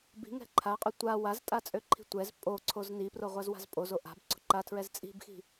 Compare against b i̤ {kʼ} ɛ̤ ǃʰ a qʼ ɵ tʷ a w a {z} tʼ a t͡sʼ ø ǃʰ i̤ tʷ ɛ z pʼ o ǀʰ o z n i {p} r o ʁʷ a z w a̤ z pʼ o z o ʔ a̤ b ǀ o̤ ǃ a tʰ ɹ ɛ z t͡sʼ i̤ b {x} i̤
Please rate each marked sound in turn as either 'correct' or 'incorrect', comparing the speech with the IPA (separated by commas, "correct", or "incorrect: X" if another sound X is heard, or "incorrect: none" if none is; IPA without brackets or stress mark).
incorrect: ŋ, correct, correct, correct